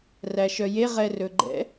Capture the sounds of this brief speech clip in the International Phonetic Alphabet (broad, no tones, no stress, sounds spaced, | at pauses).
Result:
r æ ʃ œ j e ʁ ɛ r ɵ ɡ͡ǃ ɛ̰